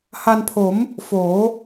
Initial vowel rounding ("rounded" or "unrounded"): unrounded